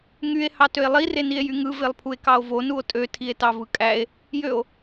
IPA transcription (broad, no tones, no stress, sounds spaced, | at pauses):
ŋ y e̯ h ɑ t ø e̯ lˠ i r e n i e̯ j y ŋ ɯ v e lˠ pʰ u e̯ k ɑ o̯ v o n u o̯ tʼ ø tʰ i e̯ t ɑ v ɯ kʼ æ e̯ | j ø o̯